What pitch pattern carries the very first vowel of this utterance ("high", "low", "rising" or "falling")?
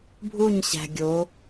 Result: falling